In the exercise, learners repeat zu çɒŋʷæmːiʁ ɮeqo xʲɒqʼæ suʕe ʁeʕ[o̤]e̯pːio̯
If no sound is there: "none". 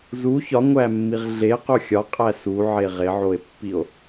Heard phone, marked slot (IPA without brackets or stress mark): o